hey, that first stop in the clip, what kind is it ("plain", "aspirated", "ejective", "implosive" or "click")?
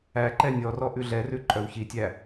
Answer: click